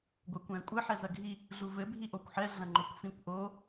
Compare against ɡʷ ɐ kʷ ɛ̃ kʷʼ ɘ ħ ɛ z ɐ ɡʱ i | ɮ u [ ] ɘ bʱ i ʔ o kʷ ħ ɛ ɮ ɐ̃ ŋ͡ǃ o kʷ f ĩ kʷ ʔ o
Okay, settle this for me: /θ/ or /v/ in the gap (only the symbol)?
v